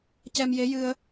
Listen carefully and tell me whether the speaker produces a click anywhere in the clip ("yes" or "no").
no